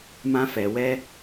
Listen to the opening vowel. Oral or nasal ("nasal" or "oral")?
nasal